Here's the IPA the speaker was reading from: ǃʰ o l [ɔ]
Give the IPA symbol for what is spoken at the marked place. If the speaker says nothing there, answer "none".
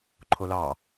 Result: ɑ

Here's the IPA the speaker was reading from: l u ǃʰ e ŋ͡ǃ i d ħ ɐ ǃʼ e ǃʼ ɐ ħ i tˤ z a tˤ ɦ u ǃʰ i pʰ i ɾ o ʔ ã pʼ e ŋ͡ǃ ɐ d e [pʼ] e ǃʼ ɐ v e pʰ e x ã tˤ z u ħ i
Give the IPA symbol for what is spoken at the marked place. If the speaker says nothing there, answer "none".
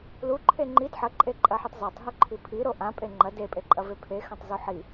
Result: pʼ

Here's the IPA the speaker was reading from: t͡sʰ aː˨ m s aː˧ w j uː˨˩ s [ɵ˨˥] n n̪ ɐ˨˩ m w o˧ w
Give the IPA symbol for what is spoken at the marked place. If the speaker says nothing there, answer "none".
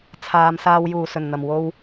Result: ɵ˨˩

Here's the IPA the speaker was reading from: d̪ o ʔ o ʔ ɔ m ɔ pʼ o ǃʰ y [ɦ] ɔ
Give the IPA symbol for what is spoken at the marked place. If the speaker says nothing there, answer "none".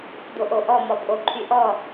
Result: ʔ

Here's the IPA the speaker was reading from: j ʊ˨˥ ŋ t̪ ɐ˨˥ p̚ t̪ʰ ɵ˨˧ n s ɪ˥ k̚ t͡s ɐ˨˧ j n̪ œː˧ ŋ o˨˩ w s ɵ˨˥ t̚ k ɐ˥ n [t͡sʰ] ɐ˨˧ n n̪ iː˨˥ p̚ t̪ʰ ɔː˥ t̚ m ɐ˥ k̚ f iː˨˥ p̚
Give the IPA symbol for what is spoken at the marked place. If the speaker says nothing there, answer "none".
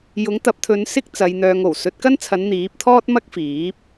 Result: t͡sʰ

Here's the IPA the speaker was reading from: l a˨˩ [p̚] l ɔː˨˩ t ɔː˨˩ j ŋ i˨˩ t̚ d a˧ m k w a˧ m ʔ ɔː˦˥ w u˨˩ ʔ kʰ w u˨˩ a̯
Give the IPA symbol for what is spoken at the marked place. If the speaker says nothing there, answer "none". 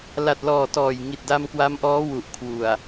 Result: t̚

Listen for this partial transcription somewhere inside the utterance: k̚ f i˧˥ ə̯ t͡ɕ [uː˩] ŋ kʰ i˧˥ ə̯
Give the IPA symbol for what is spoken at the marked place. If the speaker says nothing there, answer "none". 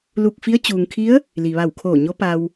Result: uː˩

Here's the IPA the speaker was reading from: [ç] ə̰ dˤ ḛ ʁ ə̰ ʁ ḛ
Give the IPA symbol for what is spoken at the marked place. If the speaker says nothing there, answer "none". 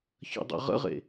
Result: ç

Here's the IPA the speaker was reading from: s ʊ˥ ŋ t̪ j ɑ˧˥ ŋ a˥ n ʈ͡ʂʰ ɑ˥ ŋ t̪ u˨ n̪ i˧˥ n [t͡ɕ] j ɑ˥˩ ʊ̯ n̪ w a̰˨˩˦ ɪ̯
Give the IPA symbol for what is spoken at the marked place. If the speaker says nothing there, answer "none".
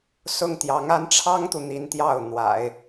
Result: t̪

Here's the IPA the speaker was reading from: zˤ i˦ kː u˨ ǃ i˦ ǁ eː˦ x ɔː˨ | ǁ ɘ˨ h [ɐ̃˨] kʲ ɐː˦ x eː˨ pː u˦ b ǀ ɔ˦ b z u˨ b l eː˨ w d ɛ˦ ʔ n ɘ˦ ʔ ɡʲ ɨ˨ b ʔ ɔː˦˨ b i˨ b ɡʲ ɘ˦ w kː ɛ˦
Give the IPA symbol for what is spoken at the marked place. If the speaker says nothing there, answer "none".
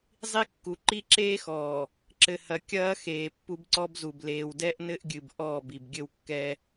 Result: ɐ˨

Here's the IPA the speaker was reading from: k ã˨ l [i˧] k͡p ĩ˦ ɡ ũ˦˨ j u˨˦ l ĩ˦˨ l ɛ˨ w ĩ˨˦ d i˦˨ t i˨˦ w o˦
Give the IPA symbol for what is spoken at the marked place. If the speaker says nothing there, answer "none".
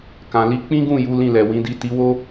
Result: i˧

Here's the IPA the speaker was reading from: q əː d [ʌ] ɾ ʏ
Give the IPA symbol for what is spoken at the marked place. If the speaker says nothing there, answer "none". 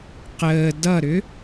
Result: ʌ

